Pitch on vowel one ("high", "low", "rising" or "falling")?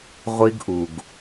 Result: high